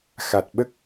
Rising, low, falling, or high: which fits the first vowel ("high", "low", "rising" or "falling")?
low